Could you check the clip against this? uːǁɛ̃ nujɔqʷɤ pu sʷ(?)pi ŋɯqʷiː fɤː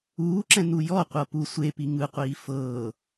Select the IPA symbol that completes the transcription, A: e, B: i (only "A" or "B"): A